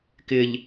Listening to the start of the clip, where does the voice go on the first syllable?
low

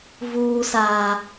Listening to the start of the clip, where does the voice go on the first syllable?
high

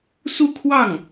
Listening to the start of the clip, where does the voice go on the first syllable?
falling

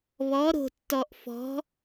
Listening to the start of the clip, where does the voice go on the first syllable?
rising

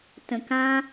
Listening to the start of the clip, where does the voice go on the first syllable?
low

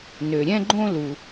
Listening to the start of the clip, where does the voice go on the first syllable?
low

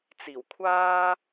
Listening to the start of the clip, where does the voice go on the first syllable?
low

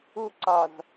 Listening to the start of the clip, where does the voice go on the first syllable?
high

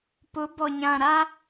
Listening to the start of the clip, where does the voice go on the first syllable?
rising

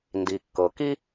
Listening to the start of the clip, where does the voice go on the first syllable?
low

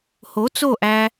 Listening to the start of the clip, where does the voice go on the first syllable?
rising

